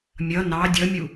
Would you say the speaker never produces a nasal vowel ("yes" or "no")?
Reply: yes